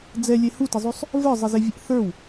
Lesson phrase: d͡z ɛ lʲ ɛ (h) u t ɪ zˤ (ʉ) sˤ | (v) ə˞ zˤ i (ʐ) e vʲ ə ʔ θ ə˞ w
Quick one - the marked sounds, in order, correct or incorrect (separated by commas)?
correct, correct, correct, incorrect